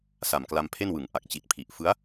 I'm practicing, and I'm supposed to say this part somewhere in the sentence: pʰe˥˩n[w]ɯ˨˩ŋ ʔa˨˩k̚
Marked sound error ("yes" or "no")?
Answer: no